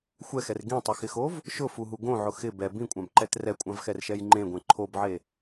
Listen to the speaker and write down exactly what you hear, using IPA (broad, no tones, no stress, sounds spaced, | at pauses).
xʷ ɛ x ɛ r ɡ ĩ tˤ ɪ x ɪ x o v | ʃ ʊ f u ɦ u ɡ õ ʕ ʊ x ɪ b ɛ b ĩ kʷʼ ã b ǃ ɛ t r ɛ kʷʼ ã v x ɛ r ʃ ɛ j ŋ͡ǃ ẽ ɡʷ ẽ ǃʰ o b ʕ e